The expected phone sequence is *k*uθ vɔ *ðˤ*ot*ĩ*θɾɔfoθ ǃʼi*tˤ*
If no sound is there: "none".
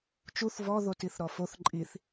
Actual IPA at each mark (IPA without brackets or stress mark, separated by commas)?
t͡ʃ, ð, i, θ